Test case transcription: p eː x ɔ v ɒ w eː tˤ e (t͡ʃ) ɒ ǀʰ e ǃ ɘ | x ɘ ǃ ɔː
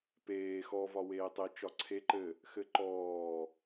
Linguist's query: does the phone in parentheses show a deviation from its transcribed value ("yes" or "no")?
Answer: no